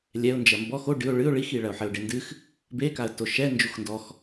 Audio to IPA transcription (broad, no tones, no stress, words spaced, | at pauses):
lʲɛʊ̯ nd͡ʒɐmbɔx o ɖɨʊ̯ ɭɨʊ̯ ɭixiɭɐʊ̯ ħɘʊ̯ɖendɨx | bekaə̯ toʃɛ nd͡ʒuxndɔx